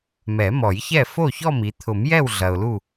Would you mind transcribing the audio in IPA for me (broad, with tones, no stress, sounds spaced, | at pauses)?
m ɛ˨˩˦ m ɔ˨˩˦ j ç ɛ˥˨ f o˥˨ ç ɔ˥˨ m i˨ t̪ʰ ʊ˨˩˦ m j ɛ˥˨ w ɮ ɐ˨ ʊ̯ l u˥˨